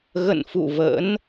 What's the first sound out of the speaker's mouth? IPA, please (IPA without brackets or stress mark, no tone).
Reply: ɣ